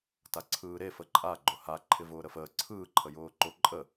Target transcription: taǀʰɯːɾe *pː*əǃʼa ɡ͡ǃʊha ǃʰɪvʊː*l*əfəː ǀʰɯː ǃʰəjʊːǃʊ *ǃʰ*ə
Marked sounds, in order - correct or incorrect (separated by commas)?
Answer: incorrect, incorrect, incorrect